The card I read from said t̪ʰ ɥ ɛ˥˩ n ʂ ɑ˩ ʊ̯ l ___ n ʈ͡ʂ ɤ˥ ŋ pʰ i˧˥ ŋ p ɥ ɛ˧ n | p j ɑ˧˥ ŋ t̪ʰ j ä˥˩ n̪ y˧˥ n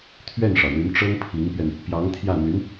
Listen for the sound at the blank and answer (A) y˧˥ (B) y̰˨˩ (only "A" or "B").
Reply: A